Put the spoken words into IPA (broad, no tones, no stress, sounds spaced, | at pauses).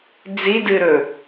d͡z i d ɨ ɾ ɵ